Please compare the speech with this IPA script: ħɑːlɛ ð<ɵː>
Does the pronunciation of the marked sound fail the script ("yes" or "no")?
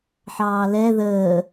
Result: yes